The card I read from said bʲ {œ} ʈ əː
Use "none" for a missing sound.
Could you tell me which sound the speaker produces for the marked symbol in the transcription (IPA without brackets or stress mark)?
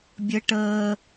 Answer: ə